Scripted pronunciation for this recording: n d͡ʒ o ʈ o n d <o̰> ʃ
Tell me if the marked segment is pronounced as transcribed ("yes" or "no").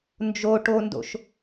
yes